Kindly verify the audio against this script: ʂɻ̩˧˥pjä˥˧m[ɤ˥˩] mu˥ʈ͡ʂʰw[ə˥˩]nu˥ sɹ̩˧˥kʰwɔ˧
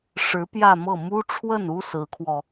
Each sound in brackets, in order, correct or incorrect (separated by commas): correct, correct